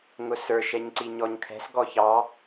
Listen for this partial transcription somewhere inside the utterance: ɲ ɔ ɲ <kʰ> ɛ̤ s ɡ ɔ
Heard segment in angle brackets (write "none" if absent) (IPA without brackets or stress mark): kʰ